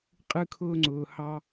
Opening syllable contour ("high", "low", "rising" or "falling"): high